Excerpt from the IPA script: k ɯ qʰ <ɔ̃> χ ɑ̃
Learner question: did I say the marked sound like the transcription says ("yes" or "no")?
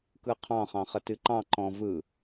no